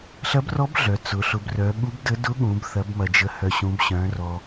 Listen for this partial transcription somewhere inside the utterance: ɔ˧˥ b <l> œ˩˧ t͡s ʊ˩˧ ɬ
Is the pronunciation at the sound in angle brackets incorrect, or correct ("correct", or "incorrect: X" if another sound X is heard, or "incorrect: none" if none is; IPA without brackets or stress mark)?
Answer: incorrect: ɮ